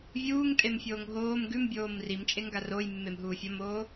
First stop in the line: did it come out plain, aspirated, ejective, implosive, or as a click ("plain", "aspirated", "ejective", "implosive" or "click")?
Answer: ejective